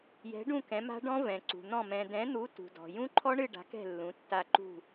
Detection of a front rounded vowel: absent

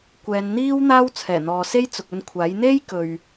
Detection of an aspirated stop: present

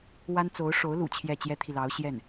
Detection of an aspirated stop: present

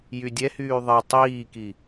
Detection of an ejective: absent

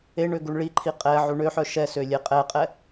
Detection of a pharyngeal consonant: present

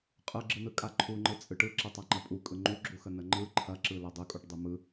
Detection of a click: present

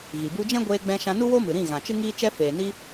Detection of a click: absent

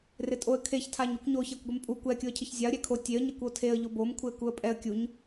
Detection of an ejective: present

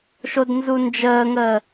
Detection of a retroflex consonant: absent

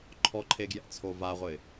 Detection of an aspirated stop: present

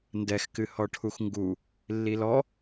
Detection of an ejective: absent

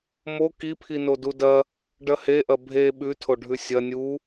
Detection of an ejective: absent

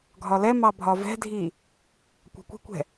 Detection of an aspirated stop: absent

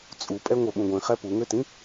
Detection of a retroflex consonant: absent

